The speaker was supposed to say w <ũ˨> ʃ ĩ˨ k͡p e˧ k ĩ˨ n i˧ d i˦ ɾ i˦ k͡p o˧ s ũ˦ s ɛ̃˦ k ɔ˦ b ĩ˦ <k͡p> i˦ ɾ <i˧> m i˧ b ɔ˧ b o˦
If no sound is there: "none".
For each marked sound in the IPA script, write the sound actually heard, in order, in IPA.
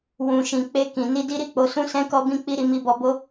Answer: ũ˨, k͡p, i˧

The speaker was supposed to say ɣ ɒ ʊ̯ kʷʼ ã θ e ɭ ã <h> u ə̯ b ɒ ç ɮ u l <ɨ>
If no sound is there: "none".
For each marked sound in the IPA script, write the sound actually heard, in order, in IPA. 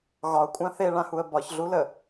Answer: h, ə

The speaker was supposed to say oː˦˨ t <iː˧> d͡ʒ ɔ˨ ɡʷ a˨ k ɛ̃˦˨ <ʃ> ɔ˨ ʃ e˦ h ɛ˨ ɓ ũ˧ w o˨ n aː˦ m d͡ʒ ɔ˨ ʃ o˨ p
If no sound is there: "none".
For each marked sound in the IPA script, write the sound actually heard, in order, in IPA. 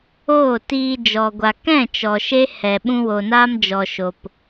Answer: iː˧, t͡ʃ

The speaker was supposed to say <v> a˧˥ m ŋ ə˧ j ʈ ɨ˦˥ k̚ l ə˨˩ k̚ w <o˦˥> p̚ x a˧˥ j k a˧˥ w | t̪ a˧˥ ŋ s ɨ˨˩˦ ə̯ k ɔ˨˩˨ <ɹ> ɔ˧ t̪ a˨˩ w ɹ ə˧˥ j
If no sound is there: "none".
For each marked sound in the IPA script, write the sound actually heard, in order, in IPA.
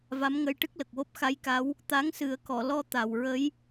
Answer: v, o˦˥, l

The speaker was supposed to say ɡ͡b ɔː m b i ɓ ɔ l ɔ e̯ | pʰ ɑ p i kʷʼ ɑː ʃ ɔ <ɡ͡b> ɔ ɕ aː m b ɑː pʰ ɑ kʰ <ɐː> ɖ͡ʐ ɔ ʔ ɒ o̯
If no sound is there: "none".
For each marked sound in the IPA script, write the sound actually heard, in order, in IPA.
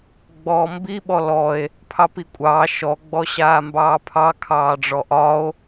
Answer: ɡ͡b, ɑː

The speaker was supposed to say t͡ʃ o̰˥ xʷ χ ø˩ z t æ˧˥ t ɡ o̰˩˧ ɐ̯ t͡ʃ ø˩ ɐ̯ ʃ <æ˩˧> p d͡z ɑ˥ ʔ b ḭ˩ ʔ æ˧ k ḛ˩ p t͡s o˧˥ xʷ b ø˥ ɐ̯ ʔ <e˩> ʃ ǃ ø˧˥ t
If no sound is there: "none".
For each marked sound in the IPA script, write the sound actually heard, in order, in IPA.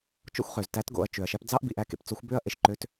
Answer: æ˥, e˩

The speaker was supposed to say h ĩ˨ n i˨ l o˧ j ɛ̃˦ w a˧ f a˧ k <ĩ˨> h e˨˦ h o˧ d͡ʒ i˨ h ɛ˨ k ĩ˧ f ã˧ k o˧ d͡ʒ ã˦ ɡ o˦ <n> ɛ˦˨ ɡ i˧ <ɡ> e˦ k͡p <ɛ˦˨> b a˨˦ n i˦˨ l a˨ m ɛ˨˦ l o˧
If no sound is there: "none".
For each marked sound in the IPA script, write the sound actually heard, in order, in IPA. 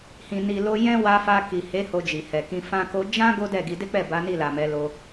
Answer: i˨, d, d, ɛ˦˨

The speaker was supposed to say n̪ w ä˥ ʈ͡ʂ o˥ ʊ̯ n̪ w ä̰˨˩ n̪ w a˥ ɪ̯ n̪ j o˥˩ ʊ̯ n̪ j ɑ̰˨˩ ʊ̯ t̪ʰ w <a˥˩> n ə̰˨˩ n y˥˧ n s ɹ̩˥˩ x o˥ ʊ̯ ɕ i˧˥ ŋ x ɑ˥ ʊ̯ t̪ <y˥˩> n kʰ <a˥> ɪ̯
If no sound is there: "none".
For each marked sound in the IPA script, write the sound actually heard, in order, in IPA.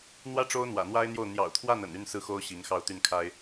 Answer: a˥˩, y˥˩, a˥

